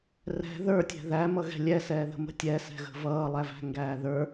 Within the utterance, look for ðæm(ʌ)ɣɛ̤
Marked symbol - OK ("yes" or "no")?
yes